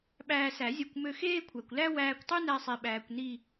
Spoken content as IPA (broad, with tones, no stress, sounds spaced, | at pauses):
ɓ æː˧ s æ˨˩˦ zʲ ɔ˧ kʷ m ø˧ x eː˥ kʷʰ æ˩ kʷ l æ˥ w æː˧ kʷ tˤ ʉ˥ n æ˧ sˤ i˩ ɓ æː˩ kʷ n i˧˩